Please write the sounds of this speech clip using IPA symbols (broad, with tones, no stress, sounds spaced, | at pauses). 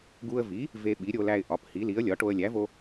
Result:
ɡ u˧ ə̯ v i˩˥ | v e˧ ɓ i˩˥ ɾʲ o˧ l æ˧ ɪ̯ ʔ ɒ˩˥ p h i˩˥ l i˩˥ ə̯ lʲ ɒ˩˥ ʈ o˧ ə̯ lʲ æ˩˥ v o˧